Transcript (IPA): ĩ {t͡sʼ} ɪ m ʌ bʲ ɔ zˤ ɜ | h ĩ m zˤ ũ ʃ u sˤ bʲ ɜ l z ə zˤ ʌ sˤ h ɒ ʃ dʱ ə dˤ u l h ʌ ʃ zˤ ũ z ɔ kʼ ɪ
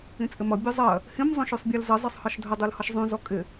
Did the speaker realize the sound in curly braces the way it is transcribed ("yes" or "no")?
yes